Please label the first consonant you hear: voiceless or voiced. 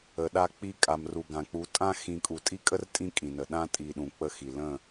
voiced